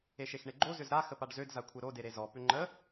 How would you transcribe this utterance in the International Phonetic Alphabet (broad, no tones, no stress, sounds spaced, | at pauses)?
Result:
e ʃ e x ɳ e ɡ͡ǃ o z ʏ z ɾ a x ə p a ɖ z ø d z a kʷʰ e ɾ o d e ɾ e z ɔ p ʏ ŋ͡ǃ ə